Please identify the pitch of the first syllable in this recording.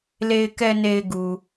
low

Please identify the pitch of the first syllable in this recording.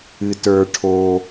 low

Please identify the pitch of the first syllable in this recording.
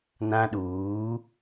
high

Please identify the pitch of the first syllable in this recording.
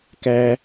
high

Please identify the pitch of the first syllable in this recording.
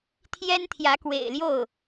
high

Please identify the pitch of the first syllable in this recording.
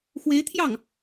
rising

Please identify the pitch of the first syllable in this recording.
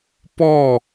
falling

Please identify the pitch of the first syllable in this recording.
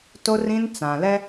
high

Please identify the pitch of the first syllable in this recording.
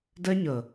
high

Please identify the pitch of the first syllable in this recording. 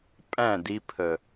falling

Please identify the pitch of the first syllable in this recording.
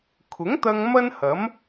rising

